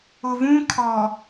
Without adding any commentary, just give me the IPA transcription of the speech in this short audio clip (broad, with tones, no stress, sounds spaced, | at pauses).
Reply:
ʊ˨ v ũ˦ kʰ ɔ˨